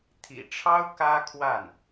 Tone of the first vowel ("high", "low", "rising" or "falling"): low